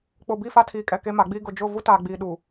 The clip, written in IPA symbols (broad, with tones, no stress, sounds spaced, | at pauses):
k͡p ʊ˨ b i˦˨ f a˦ tʰ iː˨ kʼ ɛ˨ k e˦ m a˨˦ ɡ͡b iː˦ ɡ ʊ˨ d͡ʒ ʊ˦˨ v u˦ t aː˨ ɡ͡b iː˨ ɗ uː˨